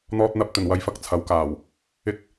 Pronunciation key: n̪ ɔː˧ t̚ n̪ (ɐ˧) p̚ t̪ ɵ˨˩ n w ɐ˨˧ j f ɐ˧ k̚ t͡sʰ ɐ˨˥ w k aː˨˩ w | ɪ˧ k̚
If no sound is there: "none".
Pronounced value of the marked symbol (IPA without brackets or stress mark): ɐ˧